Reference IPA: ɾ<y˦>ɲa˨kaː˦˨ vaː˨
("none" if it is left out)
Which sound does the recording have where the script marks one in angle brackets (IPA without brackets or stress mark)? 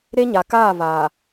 e˦